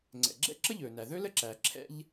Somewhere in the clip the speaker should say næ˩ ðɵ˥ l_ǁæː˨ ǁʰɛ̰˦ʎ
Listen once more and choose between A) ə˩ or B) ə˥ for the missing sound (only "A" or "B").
B